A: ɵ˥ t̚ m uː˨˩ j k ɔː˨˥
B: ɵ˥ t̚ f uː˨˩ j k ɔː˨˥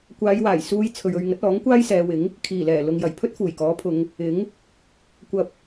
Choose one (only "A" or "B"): B